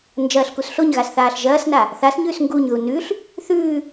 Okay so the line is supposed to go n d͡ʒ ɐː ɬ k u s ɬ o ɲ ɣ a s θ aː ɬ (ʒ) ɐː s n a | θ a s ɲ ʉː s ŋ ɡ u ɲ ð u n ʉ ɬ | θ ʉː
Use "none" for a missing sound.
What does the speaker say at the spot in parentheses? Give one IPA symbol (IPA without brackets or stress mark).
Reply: ʒ